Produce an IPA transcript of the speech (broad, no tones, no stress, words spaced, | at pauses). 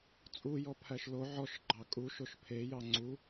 t͡sʼujɔ pʰæʃlo ʕɔʃɡ͡ǃɑ kʼuʃoʃ pʰejɑ ŋ͡ǀu